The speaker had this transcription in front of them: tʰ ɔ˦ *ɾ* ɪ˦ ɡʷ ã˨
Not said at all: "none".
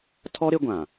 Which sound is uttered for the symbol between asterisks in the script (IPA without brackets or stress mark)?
ɾ